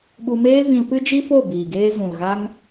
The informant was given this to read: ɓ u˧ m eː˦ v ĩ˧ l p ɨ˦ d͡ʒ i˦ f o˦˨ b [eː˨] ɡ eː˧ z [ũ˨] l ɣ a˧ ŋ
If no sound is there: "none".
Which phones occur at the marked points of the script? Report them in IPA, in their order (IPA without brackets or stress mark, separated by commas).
iː˨, ũ˨